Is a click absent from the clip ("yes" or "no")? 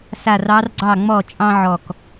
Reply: no